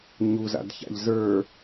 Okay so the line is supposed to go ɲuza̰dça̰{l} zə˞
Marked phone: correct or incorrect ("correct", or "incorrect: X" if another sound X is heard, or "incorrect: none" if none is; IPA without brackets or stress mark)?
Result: incorrect: ʎ